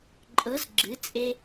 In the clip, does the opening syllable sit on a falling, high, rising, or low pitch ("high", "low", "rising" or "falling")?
rising